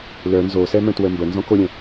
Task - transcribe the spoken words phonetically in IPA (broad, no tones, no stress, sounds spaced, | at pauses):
l œ n z o s ɛ m œ̃ t w ə m b ə n z ɔ̃ k o ɾʲ ɛ̃